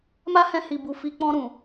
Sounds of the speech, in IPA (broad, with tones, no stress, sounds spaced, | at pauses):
m a˦ h ɛ̃˧ h i˨ b u˨ f i˧ k͡p ɔ̃˧ ɾ ũ˨